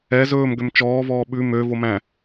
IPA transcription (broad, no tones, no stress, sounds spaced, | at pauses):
ɛ z ɵː m ɡ ø m t͡ʃ ɔː v ɔː ɓ ʉ m ø v o m æ̃